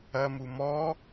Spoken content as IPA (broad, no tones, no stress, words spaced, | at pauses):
ɐmu mɔ